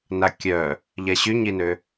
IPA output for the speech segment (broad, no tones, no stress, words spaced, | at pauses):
nakʲœ | ʎɛɕyɲinø